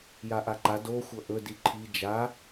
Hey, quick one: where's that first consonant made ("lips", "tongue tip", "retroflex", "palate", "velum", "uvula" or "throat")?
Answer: palate